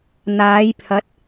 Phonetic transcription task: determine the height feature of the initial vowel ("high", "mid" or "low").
low